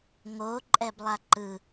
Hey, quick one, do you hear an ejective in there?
yes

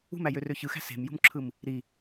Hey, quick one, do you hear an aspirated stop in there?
yes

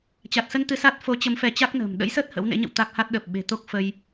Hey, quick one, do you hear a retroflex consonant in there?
no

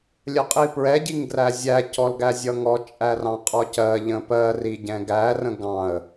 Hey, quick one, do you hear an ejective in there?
yes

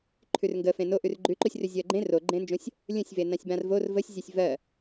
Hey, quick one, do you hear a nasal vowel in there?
yes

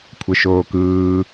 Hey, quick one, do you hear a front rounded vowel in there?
no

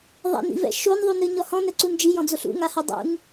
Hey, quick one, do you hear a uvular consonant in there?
no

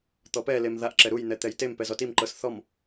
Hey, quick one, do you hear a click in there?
yes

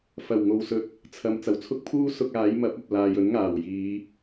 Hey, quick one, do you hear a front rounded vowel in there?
no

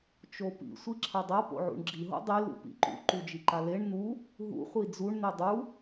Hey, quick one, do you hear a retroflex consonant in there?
yes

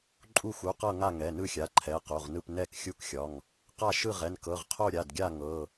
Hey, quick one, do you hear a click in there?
yes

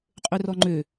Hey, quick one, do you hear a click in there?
yes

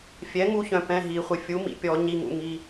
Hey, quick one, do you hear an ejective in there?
no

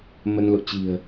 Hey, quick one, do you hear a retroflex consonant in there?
no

